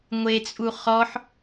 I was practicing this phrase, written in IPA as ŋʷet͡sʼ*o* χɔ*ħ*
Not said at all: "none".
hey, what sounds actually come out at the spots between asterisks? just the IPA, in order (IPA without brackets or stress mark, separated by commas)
u, ħ